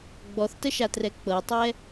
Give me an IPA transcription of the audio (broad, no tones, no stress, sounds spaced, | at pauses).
ɡ͡b ɔ θ t ə ʃ a t r ɛ k͡p ɤ tˤ ɛ